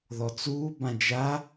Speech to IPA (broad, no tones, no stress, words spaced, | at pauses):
ðɔt͡suː bãd͡ʒa